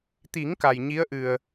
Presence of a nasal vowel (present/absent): absent